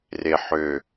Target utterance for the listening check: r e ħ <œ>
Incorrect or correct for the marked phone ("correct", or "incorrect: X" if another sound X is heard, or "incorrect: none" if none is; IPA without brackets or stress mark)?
incorrect: ø